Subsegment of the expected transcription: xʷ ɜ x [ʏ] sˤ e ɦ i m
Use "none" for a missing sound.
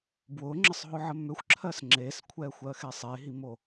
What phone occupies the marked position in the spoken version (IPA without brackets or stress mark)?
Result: ɛ